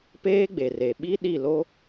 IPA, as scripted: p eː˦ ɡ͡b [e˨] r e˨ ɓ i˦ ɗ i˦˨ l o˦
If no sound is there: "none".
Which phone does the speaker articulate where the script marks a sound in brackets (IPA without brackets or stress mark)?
e˨